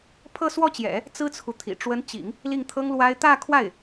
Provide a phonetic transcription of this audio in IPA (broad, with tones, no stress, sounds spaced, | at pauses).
pʰ ɤ˥˧ s w ɔ˥˩ t͡ɕ j ɛ̰˨˩˦ | t͡s ɹ̩˥ t͡sʰ u˨ t̪ʰ ḭ˨˩ ʈ͡ʂ w ə˧˥ n t͡ɕ ḭ˨˩˦ ŋ | l i˥˩ ŋ t̪ʰ ɤ˥ ŋ l w a˥ ɪ̯ t̪ ä˥˧ kʰ w a˥˩ ɪ̯